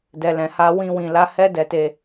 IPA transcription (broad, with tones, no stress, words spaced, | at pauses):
dɛ˨lɛ̃˨ha˧ wĩ˧wĩ˨ la˧hɛ˦ dɛ˧te˧